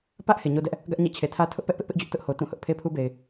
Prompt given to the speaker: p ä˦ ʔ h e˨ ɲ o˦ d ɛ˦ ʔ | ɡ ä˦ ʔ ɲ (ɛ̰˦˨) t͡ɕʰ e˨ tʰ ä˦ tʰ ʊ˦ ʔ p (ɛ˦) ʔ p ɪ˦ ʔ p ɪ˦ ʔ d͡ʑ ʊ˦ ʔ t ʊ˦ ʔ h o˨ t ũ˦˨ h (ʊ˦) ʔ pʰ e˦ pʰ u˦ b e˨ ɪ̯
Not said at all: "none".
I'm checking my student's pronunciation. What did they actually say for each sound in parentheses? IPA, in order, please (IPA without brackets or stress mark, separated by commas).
ɛ̰˦˨, ɛ˦, ʊ˦